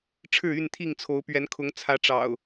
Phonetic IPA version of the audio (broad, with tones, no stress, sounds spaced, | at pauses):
ʈ͡ʂʰ ɻ̩˥˨ y˥˨ n t̪ʰ i˥˨ ŋ t͡sʰ o˨˦ ʊ̯ p ɥ ɛ˨˦ n kʰ ʊ˨˦ ŋ t͡sʰ ä˨˦ ʈ͡ʂ ɑ̰˨˩ ʊ̯